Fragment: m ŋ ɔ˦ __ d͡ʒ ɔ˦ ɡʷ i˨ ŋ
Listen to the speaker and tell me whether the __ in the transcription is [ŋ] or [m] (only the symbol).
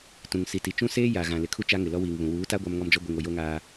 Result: m